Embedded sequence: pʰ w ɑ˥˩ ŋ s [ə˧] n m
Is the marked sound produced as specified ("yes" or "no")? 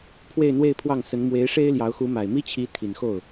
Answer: no